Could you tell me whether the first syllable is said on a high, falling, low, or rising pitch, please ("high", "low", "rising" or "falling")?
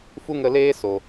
high